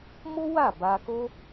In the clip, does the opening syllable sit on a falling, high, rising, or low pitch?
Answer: high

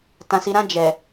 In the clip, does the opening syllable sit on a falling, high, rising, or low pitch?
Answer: low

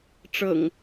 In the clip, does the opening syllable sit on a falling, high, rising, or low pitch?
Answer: low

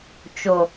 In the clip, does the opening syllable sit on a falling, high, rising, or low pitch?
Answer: low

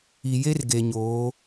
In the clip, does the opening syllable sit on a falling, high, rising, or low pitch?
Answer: low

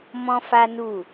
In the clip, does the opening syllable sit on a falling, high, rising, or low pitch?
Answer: high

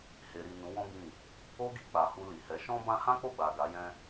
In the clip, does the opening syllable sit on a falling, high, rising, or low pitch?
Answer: low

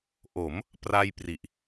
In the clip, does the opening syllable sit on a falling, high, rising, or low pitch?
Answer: rising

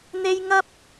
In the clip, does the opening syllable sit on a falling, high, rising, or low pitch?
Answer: high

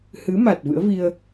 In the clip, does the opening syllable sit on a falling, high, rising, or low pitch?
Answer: rising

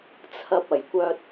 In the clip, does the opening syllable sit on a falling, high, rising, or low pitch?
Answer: low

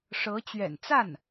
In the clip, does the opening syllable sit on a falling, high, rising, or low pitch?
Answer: rising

